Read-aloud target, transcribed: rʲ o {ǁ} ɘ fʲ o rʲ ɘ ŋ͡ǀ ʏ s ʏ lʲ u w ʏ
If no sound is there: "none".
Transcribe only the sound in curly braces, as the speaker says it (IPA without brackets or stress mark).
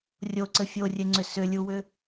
ǀ